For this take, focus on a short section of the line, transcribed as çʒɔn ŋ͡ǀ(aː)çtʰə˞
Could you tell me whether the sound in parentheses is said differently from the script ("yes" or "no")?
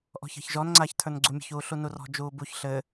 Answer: no